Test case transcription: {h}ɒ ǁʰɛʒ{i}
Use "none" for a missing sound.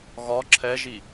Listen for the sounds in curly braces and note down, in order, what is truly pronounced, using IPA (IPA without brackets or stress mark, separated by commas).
ɣ, i